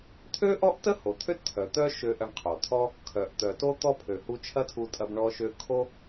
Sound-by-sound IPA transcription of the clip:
t̪ʰ ø˥ ʔ ɔ˥ ʔ t ə˥ h o˩ t̪ʰ ø˥ t t̪ʰ œ˩ t̪ œ˥ ʃ ø˧ ʔ ɐ˧ ɳ qʰ o˩ t̪ʰ ɔ˥ | kʰ œ˩ ʔ t̪ œ˩ t o˧ t̪ ɔ˧ pʰ ø˩ h u˧ t͡ʃʰ ɐ˥ tʰ u˧ tʼ ɐ˧ b ɳ ɔ˧ ʃ ø˧ kʰ o˥

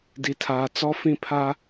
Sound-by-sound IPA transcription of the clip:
d i˨ tʰ aː˨ t͡s ɔ˦ f ĩ˦ pʰ a˦

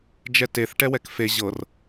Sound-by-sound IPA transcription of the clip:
d͡ʒ ɛ t e θ ʈ ɛ w ɛ k f e ʑ ɤ r

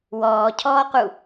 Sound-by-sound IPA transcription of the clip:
w ɔː cʰ ɔː q u

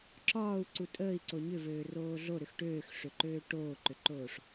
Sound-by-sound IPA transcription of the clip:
ǁ ɒː u̯ ǀ u tʼ əː i̯ ǀ o ɲ ʏ v øː r oː ɮ o ɾ ʏ x ʈ øː x ʂ ø ǃ øː ʈ oː ǃ ʏ ǃ oː ʂ

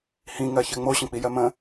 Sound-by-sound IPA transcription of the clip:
h ĩ ŋ ɜ ç ɜ ŋ͡m o ɕ ə̃ k͡p i j ɜ m ə̃

